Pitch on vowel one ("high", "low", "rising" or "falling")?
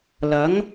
rising